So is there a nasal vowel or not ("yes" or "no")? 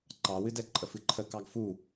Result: no